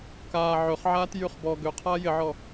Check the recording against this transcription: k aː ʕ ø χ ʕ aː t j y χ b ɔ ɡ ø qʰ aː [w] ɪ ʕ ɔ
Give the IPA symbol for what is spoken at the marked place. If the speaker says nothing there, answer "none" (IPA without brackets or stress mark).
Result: j